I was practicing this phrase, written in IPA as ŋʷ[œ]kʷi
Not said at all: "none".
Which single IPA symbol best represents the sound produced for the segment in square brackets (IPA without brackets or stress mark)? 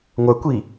œ